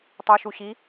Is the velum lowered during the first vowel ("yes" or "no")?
no